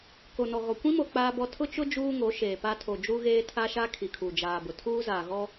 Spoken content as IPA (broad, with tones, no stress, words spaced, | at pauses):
ko˨nɔ˨ɣɔ˨ kʷĩ˦mo˨ k͡paː˦bɔ˦ tʰʊ˦t͡ʃʊ˦ d͡ʒuː˦ŋo˨˦ʃeː˨ pa˦tʰo˨d͡ʒu˦ɣeː˦ tʰa˦ʃa˦ kʰi˨kʰu˨d͡ʒaː˨bʊ˨ tʰuː˦zaː˨ ɣɔ˦